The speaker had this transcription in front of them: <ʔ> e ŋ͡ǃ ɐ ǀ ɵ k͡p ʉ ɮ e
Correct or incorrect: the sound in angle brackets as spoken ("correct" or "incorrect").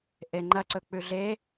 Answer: correct